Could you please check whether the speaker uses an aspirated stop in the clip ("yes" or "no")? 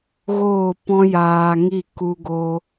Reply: no